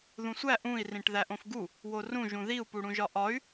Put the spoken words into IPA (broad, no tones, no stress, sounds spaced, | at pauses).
ð ũ sʷ æ ʔ ũ i̯ r ĩ ʈ ð æ ʔ õ f ɡ u | w o r ũ ʒ ũ ð i u̯ p u ɽ ũ ʒ ɒ ʔ ɒ y̯